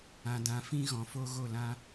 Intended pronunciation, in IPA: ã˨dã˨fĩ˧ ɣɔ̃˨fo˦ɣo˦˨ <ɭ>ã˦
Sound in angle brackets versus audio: incorrect: l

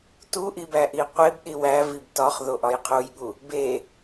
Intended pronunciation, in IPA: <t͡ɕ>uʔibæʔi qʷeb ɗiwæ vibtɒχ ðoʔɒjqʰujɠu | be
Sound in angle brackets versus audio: incorrect: t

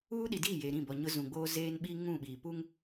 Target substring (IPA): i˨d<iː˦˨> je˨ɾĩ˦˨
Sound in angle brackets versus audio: correct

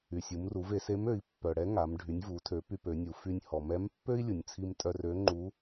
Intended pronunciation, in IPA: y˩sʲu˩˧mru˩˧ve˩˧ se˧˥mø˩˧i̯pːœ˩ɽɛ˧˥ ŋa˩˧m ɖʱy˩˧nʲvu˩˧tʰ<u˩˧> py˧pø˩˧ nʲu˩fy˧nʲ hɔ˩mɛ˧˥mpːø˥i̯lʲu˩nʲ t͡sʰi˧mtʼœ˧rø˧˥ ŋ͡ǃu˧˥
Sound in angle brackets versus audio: incorrect: ø˩˧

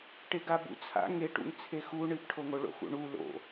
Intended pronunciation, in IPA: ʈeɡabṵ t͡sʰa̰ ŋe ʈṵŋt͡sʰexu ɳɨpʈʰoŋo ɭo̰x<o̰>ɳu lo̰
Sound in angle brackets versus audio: incorrect: ṵ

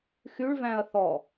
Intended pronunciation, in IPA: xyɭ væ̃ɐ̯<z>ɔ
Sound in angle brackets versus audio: incorrect: θ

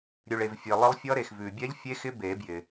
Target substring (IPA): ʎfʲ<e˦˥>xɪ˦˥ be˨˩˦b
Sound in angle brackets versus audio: correct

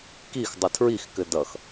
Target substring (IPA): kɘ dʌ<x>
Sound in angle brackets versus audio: correct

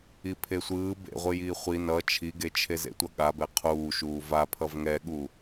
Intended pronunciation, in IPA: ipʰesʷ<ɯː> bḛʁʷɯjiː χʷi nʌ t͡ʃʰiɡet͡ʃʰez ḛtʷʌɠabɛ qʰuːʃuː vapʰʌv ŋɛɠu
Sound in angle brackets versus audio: correct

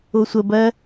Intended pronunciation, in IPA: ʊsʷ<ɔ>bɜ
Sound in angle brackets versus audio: incorrect: ə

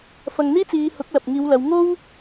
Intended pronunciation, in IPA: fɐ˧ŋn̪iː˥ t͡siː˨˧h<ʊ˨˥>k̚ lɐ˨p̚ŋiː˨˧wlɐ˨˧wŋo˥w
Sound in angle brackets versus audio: correct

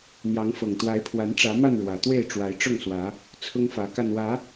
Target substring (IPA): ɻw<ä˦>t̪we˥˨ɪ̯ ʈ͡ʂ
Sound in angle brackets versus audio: incorrect: ä˨˩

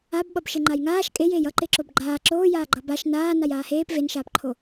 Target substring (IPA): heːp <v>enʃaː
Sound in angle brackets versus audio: correct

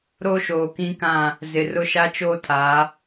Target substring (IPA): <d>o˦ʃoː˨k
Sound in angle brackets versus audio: incorrect: ɾ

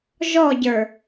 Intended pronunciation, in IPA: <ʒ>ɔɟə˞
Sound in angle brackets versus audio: correct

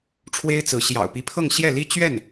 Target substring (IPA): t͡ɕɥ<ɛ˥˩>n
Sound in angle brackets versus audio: correct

